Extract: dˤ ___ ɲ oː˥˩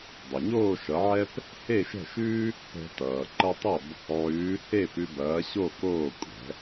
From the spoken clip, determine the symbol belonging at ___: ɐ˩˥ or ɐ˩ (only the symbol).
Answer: ɐ˩